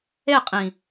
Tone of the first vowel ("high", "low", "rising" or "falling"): falling